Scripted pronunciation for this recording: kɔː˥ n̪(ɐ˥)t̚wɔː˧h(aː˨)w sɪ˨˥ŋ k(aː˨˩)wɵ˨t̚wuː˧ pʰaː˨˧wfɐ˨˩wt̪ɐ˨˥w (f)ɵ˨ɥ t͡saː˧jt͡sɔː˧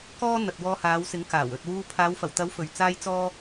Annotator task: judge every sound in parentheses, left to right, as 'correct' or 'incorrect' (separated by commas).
incorrect, incorrect, correct, correct